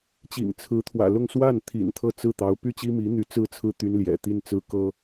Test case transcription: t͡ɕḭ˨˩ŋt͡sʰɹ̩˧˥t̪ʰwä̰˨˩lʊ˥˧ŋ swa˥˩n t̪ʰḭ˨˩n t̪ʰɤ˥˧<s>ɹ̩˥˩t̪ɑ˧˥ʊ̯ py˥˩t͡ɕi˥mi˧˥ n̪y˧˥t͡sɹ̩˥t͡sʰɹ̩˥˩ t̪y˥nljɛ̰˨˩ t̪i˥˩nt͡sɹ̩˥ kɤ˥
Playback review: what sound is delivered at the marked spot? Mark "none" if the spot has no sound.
t͡s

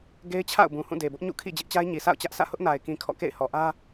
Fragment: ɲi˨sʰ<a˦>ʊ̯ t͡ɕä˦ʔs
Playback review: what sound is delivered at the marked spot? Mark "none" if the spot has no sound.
a̰˦˨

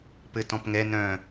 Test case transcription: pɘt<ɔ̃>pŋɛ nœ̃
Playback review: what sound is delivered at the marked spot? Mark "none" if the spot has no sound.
ɔ̃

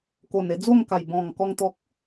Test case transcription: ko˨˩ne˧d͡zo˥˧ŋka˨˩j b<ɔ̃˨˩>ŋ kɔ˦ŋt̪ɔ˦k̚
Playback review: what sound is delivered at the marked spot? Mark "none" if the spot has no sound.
ɔ̃˨˩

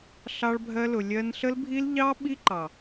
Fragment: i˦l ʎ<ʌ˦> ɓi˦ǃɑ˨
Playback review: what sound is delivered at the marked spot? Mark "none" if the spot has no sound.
ɑ˦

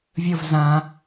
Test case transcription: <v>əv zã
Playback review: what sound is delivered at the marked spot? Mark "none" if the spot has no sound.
vʲ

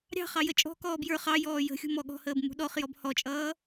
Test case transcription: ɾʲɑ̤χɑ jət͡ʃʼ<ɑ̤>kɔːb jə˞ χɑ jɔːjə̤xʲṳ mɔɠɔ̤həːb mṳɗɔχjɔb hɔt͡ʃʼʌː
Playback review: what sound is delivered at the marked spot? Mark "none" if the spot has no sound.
ɔ̤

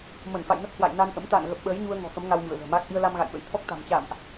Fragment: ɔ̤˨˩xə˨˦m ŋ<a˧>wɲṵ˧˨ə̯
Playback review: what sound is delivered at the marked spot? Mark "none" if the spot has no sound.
a˧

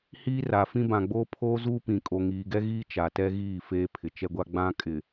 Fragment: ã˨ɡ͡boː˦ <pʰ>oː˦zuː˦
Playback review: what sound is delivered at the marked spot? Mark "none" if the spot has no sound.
pʰ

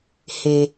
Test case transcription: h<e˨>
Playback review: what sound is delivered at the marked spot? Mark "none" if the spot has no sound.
e˨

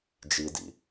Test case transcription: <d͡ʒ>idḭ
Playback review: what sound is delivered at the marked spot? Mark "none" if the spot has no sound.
d͡ʒ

